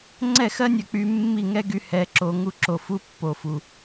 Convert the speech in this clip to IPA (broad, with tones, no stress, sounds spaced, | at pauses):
ŋ͡ǀ ɛ˦˨ x ɜ˦ nʲ ɐ˧ k͡p y˧ mː i˦˨ ŋ ɛ˦ ɡ y˧ h ɛ˨ ǁ o˨ ŋ u˧ ǁ o˨ f u˧ pː o˨ f u˨